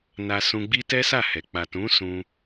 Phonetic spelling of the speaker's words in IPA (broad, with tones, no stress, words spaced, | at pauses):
na˧sũ˧ɡ͡bi˦ tɛ˦sa˦˨hɛ˨ k͡pa˨tũ˨˦ sũ˧